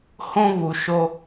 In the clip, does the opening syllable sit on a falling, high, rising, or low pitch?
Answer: high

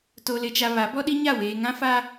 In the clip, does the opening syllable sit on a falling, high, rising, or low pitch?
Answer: low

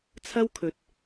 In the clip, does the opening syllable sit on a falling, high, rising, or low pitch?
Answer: high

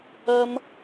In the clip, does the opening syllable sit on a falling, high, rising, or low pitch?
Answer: high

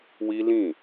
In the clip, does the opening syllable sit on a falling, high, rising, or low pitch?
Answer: high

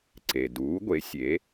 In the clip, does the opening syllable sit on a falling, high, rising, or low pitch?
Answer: low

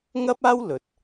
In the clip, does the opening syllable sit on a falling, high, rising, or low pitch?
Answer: high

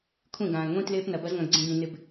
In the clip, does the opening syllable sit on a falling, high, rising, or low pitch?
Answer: falling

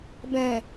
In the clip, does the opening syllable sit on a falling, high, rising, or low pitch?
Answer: low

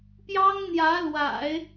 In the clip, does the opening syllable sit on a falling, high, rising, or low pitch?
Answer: high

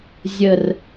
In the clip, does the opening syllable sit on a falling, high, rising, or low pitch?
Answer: low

